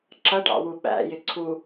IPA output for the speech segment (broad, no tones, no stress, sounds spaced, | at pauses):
ǁ ʌ ɖ ɑ̰ w u ɓ æ̰ j ɪ ǀʰ u